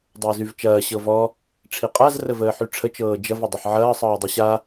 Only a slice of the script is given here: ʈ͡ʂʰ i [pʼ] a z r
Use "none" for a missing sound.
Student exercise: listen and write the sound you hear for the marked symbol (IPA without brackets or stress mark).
qʼ